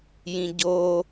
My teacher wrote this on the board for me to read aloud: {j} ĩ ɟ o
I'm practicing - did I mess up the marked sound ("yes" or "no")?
no